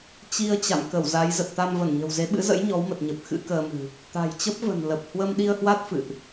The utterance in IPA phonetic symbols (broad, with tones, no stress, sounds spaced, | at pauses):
t͡ɕ i˧ ə̯ t͡ɕ a̰˧˨ m k ə˧˩ w z a˨˦ j z ə˨˩ t̚ t̪ a˧ m v ə˧˩ n ɲ ə̤˨˩ w z e˨˦ ɓ ɨ̰˧˥ z ə̰˧˥ j ɲ ɔ˨˦ w m ə˨˩ t̚ ɲ ə˨˩ p̚ x ɨ̰˧˥ k əː˧ m ɨ̤˨˩ | t̪ a̤˨˩ j t͡ɕ ə˦˥ p̚ v ə̤˨˩ n l ə˨˩ p̚ h w ə˧ m ɗ i˧ ə̯ h w a˦˥ t̚ f ɨ̰˧˨ ʔ